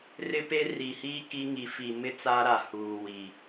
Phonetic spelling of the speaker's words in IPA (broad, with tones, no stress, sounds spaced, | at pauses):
r ɪ˦ p e˦ r i˨ h iː˦ k i˦ ŋ i˨ f i˨ m ɪ˦ t͡s aː˦ ɾ a˨ h uː˨ w i˨